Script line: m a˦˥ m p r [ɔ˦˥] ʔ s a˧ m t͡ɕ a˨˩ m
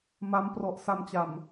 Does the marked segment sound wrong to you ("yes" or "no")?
yes